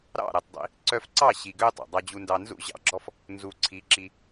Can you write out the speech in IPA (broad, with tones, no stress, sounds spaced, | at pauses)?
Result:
ɾ ɑ̰˦˨ ɾ ɛ˨ tˤ dˤ ḭ˧ | ǀ œ˧ f ǀ ɑ˦˨ ɕ i˨ ɡ ø˦ tˤ ɑ̰˨ dˤ ɑ˧ d͡ʑ u˧ n d ɑ˧ n z ṵ˦˨ ʑ ɑ̰˦˨ ɡ͡ǁ ɔ˦ f | n z u˨ ǀʰ i˨˦ ǁ i˧